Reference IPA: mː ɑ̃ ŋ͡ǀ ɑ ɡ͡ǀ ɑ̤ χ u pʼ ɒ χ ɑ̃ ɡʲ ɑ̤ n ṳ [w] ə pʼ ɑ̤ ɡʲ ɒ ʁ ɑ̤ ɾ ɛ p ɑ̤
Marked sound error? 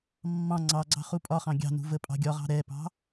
yes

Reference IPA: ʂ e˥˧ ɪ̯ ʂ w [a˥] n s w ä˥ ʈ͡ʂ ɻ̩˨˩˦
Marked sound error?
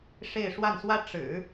yes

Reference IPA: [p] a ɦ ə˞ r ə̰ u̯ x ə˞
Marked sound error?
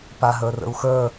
no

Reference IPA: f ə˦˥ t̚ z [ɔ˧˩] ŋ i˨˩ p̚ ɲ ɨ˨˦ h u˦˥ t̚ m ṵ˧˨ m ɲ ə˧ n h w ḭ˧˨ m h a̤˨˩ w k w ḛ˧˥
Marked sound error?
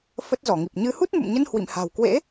no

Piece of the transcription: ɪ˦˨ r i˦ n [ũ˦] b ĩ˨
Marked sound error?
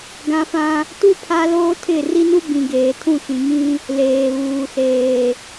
yes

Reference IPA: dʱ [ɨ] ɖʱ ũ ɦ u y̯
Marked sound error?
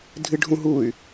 no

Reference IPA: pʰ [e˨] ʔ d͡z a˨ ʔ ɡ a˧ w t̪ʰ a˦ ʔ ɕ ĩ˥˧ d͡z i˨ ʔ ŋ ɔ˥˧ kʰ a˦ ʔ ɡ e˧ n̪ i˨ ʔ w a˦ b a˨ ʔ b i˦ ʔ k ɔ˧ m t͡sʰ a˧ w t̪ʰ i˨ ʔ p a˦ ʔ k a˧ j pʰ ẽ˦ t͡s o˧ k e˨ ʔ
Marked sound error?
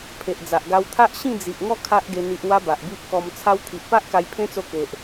no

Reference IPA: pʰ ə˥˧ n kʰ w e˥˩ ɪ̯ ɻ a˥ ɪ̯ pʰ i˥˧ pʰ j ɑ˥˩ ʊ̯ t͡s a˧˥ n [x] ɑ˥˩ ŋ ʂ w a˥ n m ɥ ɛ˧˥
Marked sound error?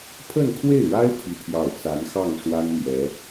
no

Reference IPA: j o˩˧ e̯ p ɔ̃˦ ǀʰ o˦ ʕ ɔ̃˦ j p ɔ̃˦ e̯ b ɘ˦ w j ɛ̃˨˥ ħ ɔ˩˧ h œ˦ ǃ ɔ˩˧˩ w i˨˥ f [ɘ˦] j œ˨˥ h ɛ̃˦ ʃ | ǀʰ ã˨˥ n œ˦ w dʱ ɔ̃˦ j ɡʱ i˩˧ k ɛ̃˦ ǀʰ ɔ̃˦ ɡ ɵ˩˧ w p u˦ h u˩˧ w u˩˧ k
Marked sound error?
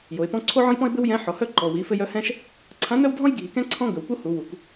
no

